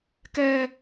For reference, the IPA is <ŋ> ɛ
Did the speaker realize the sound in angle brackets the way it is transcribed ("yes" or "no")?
no